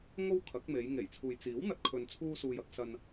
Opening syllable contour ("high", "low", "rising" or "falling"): high